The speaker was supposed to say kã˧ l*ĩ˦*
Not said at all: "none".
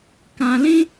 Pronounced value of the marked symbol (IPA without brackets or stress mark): ĩ˦